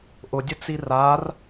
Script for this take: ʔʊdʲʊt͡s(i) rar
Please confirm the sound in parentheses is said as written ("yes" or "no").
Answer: yes